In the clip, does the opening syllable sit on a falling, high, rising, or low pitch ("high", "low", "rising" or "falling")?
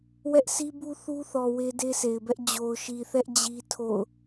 high